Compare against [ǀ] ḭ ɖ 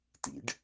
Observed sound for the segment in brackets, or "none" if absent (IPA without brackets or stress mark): t